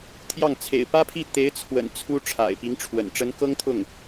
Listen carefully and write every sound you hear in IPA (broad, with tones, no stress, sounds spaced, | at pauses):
t̪ʰ j ɑ˥˩ ŋ t͡sʰ ḛ˨˩ ɪ̯ p ä˥ pʰ i˥˩ t̪ e˧˥ ɪ̯ t͡sʰ w ə̰˨˩ n t͡sʰ u˥ ʈ͡ʂʰ a̰˨˩ ɪ̯ p i˧˥ ŋ ʈ͡ʂʰ w ə̰˨˩ n ʈ͡ʂ ə˧˥ n k ɤ˥ ŋ t̪ʰ ʊ˥˩ ŋ